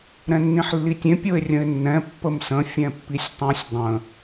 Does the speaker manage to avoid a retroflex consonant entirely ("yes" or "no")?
yes